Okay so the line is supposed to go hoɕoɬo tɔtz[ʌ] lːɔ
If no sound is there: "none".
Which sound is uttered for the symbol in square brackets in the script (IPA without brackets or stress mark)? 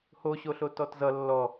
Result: ʌ